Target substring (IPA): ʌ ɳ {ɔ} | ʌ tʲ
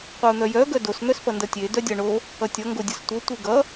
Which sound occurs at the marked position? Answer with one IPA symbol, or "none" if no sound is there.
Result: o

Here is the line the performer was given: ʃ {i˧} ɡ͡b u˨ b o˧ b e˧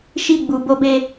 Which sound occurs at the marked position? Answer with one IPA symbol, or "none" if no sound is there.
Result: i˧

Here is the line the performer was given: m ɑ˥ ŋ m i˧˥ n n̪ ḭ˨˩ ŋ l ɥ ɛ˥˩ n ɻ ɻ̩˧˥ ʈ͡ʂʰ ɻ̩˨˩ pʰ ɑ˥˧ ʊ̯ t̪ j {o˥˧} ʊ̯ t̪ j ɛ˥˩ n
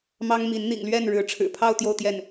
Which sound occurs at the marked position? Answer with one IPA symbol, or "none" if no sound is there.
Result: o˥˧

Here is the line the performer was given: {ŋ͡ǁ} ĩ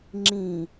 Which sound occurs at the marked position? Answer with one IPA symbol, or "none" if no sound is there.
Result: ŋ͡ǁ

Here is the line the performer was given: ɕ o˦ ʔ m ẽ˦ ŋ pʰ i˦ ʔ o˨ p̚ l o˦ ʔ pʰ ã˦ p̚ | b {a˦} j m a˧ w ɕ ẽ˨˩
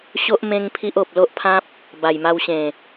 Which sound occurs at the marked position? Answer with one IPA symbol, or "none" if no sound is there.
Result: a˨˩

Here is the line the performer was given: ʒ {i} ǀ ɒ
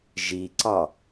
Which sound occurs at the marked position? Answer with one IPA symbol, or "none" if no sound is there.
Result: i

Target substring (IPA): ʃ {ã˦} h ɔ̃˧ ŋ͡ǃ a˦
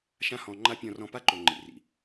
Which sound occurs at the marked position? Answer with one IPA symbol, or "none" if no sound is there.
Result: ã˦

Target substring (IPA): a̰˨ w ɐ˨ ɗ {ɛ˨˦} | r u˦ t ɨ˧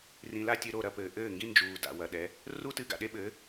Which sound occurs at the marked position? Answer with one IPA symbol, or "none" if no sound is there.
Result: ɛ˨˦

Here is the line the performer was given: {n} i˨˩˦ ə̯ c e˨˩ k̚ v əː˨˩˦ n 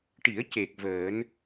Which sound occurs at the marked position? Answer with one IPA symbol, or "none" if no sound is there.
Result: ʈ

